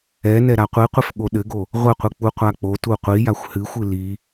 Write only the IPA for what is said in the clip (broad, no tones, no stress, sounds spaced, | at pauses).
ɛ n ɛ ɾ a qʷ i qʷ ɘ f ɠ o ɗ ɘ ɡ o | ʁʷ ɘ qʷ ɨ k͡p u qʷ a k͡p o t u qʷ i j a xʷ h ɨ xʷ ɨ l i